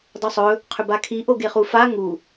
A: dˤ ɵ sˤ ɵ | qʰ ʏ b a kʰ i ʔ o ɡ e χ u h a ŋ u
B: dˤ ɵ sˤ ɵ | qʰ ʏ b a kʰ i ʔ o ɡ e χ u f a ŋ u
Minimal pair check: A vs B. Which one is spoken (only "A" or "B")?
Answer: B